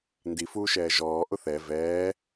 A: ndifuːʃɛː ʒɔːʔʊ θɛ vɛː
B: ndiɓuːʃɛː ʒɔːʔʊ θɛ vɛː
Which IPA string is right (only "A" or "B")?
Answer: A